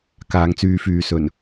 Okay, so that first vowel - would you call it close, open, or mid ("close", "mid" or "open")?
open